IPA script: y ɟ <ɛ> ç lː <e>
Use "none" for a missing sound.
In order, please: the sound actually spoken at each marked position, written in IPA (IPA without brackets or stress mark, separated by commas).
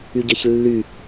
ɛ, y